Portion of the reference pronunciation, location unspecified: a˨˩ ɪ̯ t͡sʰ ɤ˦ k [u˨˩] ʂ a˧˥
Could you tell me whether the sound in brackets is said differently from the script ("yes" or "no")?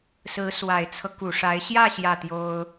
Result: no